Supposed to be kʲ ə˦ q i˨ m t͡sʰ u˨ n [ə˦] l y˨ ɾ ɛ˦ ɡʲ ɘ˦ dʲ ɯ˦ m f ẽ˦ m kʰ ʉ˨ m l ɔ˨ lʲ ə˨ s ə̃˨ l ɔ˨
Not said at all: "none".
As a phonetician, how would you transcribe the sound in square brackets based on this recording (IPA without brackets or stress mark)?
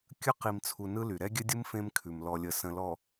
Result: ɯ˦